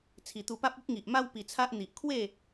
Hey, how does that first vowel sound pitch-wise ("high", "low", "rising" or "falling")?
low